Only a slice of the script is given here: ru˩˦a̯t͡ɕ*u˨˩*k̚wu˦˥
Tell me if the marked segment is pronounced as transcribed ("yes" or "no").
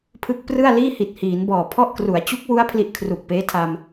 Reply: no